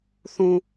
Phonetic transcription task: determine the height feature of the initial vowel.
high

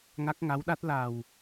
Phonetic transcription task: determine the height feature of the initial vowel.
low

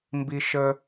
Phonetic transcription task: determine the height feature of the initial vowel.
high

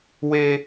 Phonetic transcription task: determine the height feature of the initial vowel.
mid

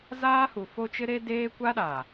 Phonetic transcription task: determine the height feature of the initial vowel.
low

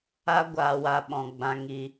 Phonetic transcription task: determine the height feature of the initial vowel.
low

